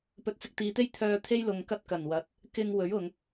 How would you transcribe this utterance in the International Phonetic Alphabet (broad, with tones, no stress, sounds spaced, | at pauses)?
p ɵ˨ t̚ t͡s ɪ˧ k̚ t̪ iː˨˧ t̪ e˥ j t̪ʰ œː˧ t̪ʰ e˥ j l ʊ˨ ŋ k ɐ˧ t̚ k ɐ˨˩ n w ɐ˨˥ t̚ | k ɪ˧ ŋ w ɵ˨˥ ɥ ʊ˨ ŋ